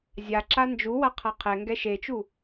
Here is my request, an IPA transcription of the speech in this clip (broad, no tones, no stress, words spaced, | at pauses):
zʲaǁa nd͡ʒuwa qʰaqʰɛŋɡɛ ʃet͡ʃu